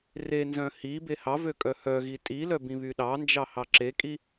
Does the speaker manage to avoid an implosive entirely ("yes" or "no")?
no